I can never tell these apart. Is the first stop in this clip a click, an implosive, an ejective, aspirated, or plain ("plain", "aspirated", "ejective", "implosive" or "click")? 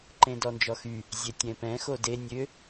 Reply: click